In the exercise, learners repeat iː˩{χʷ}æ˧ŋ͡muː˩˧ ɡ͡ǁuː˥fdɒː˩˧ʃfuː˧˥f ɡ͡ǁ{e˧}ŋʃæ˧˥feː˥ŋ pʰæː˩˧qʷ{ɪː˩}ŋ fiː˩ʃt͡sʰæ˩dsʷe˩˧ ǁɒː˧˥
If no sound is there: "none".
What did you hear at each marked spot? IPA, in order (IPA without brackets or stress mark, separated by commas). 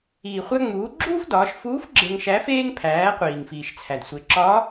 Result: χʷ, e˧, iː˩